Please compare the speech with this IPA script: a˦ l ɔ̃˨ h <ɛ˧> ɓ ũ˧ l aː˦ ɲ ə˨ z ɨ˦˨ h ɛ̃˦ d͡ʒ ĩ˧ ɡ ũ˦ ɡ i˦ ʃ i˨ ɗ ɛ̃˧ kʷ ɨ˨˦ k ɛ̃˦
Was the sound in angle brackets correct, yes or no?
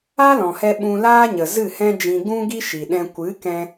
yes